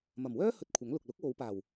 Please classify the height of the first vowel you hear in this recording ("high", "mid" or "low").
low